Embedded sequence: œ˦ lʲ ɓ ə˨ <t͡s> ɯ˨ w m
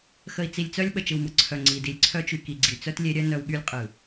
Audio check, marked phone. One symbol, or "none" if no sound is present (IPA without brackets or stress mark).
t͡ʃ